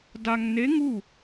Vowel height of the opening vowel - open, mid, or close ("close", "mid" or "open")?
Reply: open